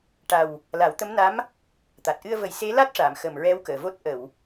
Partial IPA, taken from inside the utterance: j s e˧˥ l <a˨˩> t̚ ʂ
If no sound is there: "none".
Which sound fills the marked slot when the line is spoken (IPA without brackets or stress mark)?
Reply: a˦˥